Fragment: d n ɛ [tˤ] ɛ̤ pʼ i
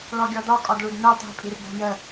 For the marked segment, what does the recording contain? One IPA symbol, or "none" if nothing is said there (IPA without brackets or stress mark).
tˤ